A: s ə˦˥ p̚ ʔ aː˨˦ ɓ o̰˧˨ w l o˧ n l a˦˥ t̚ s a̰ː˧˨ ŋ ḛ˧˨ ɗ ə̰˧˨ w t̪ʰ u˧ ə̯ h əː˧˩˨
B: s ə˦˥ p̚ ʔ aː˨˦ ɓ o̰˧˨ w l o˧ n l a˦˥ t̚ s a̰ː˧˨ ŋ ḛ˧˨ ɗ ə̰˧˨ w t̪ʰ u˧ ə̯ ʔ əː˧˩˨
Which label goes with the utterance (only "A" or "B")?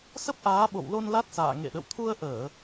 B